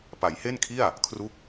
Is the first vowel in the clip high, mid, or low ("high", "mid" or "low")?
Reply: low